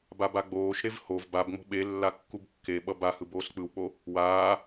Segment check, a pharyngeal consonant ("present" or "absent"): absent